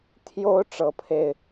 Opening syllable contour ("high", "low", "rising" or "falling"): high